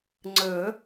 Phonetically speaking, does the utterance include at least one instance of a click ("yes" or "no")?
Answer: yes